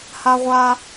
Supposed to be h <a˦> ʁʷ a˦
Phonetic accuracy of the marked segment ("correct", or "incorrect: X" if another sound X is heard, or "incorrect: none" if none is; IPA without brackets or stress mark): correct